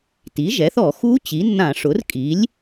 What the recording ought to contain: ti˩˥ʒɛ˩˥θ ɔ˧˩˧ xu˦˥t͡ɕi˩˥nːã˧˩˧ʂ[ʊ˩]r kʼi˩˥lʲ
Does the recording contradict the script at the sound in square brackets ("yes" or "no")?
yes